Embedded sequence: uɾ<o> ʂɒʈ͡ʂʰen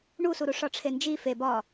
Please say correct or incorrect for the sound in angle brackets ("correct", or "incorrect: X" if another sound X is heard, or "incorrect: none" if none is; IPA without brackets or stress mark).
incorrect: u